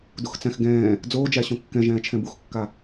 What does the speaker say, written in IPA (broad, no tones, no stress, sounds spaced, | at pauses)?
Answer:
d u x t͡s æ̃ x ɡ ɛ̃ː | d͡z oː d͡ʒ æ ɕ õ kː ɛ̃ ʒ ɛ̃ː t͡ʃʰ ɛ̃ b u x kː a